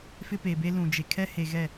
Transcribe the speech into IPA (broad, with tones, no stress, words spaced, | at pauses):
fɪ˦pe˨be˦ lũ˨d͡ʒe˨kʰɛ˦ he˨ɣɛ˦˨